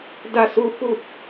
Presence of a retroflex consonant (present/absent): absent